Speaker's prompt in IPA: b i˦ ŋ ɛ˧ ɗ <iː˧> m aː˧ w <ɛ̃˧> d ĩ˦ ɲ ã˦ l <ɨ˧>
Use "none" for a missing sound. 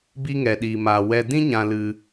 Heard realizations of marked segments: iː˧, ɛ˧, ɨ˦

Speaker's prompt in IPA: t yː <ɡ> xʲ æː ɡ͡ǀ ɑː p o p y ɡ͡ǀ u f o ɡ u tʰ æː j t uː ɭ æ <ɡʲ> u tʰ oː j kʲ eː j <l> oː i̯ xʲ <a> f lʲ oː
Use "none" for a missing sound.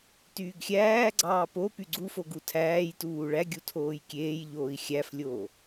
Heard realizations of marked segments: ɡ, ɡʲ, ʎ, æ

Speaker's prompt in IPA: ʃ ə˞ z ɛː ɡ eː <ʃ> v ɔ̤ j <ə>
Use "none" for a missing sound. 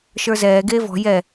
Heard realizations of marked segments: none, ɛ

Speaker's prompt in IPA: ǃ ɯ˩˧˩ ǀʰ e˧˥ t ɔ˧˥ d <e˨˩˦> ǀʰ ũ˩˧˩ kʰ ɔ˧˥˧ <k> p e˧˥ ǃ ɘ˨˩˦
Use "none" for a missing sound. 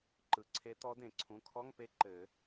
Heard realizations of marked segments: ẽ˨˩˦, ŋ

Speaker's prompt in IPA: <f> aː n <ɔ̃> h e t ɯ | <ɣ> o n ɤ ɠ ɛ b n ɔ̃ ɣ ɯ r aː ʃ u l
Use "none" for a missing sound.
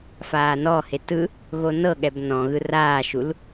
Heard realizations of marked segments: f, ɔ, ɣ

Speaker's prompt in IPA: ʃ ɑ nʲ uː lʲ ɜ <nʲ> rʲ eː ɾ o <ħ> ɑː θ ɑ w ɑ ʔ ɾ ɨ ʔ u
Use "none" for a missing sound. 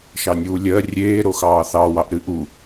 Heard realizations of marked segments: none, x

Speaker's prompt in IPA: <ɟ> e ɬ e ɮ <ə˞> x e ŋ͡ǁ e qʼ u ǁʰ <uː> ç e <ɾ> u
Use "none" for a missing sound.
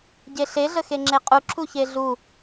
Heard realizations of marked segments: ɟ, ə, u, ɮ

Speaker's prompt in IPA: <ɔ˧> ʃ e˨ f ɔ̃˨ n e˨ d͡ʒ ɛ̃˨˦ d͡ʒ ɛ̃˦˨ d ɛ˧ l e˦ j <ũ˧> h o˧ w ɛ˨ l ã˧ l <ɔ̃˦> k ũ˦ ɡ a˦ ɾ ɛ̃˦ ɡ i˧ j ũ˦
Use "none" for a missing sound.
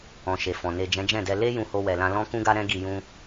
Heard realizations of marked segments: ɔ̃˧, ũ˧, ɔ̃˦

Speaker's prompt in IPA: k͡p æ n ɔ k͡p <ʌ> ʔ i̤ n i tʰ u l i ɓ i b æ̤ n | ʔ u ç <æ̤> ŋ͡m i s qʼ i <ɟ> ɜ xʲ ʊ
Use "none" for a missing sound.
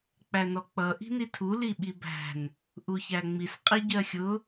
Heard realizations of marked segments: ʌ, æ, ɟ

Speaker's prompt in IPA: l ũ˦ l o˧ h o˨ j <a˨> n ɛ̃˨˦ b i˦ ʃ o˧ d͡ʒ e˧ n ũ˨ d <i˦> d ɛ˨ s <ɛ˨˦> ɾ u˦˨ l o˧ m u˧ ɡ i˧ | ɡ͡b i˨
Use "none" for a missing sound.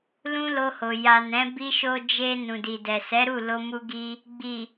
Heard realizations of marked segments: a˨, i˨, ɛ˨˦

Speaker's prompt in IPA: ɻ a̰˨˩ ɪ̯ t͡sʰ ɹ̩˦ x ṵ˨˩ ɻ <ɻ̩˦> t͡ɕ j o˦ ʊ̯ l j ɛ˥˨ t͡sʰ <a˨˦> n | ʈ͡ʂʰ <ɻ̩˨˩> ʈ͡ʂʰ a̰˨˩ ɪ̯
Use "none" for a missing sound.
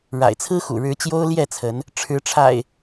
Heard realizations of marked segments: ɻ̩˨˦, ə˨˦, ɻ̩˨˦

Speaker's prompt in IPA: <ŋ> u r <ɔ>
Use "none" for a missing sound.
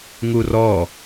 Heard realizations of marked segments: ŋ, ɔ

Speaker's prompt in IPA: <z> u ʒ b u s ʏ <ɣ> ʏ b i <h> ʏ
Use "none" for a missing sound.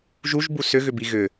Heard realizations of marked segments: ʒ, ɣ, ɣ

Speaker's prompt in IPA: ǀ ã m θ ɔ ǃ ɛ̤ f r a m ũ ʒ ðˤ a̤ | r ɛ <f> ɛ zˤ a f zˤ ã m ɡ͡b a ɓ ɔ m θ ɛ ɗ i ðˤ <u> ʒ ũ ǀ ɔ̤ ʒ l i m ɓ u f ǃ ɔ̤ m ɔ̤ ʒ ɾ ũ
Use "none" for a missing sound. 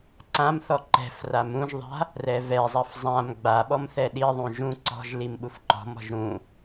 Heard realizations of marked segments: v, ũ

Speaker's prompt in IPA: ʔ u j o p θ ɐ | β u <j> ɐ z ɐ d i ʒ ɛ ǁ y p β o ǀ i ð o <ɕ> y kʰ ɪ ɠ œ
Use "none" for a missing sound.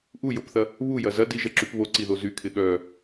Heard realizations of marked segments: j, z

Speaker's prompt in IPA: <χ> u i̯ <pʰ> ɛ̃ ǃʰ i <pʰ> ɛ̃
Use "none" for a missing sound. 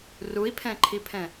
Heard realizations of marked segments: r, pʰ, pʰ

